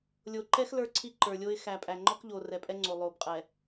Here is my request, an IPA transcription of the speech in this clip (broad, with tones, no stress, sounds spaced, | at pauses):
lʲ o˨ ǃ ɛ˦ x l ə˞˦ ǀʰ i˦ ǃ ə˞˨ lʲ o˦ ɪ̯ x æ˨ pʼ æ˨ ŋ͡ǃ ɔ˦ k ʎ o˨ r ɛ˨ pʼ ɛ˦ ŋ͡ǀ o˨ lˠ o˨ b qʼ ɛ˨